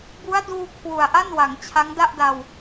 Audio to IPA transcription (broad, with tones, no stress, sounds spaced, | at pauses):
b u˦˥ a̯ d uː˧ kʰ w u˨˩ a̯ ʔ a˥˩ n w a˩˦ ŋ t͡ɕʰ a˦˥ ŋ d a˥˩ ʔ d a˧ w